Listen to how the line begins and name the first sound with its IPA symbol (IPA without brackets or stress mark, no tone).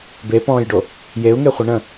b